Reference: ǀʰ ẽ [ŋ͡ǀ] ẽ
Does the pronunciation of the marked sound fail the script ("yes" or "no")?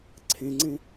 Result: no